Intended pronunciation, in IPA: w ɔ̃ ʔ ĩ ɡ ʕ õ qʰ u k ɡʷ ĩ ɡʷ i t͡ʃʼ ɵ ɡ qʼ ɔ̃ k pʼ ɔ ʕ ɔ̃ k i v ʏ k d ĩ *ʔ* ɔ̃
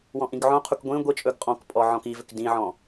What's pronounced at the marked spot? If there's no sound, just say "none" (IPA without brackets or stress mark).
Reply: ʕ